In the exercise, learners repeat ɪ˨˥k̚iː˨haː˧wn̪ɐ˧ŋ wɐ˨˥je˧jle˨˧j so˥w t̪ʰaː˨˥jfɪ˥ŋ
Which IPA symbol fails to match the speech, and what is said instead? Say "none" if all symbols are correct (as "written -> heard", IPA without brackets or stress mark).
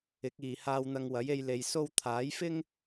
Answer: none